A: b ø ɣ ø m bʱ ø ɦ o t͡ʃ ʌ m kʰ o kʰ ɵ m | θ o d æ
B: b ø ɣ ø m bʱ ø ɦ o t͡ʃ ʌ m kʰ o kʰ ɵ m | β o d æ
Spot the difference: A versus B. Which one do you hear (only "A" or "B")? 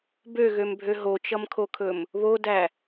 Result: B